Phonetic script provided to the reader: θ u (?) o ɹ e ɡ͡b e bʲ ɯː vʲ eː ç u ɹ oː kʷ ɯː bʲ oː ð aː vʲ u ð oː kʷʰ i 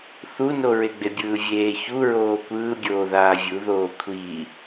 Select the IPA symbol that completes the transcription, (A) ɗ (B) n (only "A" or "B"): B